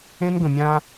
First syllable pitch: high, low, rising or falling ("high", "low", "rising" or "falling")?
high